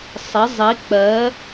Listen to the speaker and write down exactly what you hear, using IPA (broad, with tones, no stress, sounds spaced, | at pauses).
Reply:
sˤ ɪ˩˥ zˤ i˩˥ k͡p ɜ˩˥